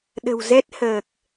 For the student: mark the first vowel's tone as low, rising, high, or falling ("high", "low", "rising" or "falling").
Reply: low